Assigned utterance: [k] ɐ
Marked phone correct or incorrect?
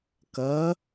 correct